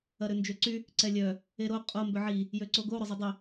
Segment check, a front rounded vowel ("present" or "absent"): present